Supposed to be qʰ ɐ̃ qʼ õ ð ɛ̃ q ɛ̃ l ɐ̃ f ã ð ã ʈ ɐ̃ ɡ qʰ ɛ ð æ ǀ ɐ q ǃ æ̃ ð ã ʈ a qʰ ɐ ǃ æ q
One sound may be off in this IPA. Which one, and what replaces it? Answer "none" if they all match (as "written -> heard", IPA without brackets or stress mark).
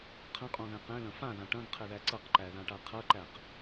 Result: æ̃ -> æ